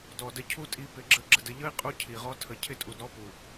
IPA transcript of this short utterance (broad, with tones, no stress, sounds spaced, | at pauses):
d ɔ˨ d ə˧ cʰ u˦ tʼ i˧ p ɪ˨˦ ɡ͡ǁ ə˧ ɡ͡ǁ ə˧ d ə˧ ʎ ə˦ i̯ qʼ u˧ cʰ i˨ ʁ ɔ˧ tʰ ə˨ cʰ ɪ˦˨ tʼ u˨ d ɾ ɔ˦ p u˨